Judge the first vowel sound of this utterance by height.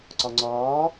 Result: low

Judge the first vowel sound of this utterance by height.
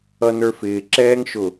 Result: mid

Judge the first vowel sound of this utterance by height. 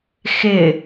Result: high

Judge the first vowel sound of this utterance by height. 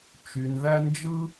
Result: high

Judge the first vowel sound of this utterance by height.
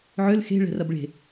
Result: high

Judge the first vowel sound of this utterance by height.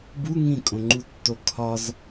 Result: high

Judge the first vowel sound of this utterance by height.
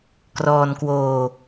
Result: mid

